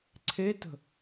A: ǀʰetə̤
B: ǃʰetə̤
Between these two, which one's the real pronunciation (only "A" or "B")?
A